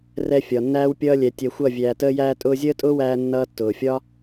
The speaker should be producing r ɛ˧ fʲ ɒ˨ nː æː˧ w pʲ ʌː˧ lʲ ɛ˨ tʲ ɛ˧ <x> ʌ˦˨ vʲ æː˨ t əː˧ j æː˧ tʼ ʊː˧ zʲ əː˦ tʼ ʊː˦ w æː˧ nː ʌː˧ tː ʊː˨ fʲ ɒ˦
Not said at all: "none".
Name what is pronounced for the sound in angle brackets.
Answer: xʷ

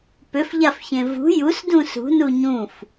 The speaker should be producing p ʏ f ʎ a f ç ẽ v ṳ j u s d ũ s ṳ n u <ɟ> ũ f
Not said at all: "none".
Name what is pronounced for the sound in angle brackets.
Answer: ɲ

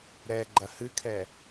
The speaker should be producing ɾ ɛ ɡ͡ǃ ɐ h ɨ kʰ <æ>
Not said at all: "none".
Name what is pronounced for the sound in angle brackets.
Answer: ɛ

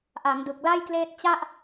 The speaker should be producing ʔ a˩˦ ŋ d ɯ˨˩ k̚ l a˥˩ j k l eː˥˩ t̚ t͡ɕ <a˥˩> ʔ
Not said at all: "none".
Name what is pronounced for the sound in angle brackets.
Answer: a˥˩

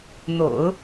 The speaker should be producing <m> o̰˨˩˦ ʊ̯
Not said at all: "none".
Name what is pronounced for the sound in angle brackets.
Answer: n̪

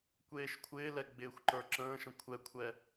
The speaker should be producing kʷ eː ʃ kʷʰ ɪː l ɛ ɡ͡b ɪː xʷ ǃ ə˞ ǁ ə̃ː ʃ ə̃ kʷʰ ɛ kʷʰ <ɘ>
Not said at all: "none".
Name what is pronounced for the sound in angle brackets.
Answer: ɛ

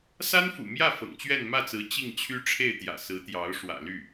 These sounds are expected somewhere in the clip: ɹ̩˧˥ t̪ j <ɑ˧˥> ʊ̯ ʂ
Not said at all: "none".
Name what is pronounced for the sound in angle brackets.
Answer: ɑ˧˥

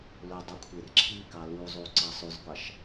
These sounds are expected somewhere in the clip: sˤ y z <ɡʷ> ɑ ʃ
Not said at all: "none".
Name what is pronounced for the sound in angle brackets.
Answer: ɡʷ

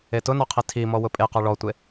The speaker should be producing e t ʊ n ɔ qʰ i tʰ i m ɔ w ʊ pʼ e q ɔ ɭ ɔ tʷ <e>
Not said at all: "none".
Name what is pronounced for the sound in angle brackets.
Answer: e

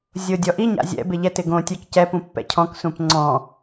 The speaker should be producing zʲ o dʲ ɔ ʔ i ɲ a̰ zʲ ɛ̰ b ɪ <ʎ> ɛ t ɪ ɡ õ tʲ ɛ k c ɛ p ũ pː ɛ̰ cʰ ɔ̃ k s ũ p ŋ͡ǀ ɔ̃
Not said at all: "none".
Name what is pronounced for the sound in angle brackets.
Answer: ʎ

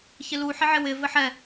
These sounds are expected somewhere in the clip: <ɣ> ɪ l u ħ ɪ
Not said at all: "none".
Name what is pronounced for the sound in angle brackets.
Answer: ç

